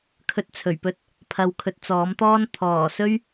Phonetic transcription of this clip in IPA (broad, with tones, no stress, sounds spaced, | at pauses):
kʰ ɵ˧ t̚ t͡sʰ ɵ˨˩ ɥ p ɵ˧ t̚ | pʰ ɐ˨ w kʰ ɵ˨ t̚ t͡s ɔː˨˥ m t̪ ɔː˥ n t̪ʰ ɔː˨˩ s ɵ˥ ɥ